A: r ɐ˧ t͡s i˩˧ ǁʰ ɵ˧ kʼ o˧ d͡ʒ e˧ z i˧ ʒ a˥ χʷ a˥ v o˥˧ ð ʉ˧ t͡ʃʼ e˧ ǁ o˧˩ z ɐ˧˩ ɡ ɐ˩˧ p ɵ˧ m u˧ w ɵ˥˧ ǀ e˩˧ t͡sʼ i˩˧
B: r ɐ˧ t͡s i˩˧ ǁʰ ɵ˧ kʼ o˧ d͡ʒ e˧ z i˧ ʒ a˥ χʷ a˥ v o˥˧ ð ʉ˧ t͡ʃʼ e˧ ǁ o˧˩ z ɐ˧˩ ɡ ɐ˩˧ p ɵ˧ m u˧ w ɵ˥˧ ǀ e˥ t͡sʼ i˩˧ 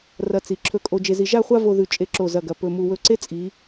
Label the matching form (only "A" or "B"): B